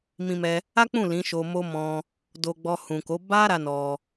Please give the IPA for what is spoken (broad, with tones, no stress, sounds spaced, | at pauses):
m ĩ˧ m ɛ˧ | a˦ k͡p ũ˦˨ l ĩ˨˦ ʃ o˧ m o˦ m ɔ̃˧ | d o˧ ɡ͡b ɔ˧ h ũ˨ k o˨˦ b a˦ ɾ a˦ n ɔ˧